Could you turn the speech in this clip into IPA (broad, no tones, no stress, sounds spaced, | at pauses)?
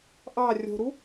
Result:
ʔ ɑ rʲ o̤ ɾ u